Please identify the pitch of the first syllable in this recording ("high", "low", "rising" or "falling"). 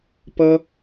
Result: high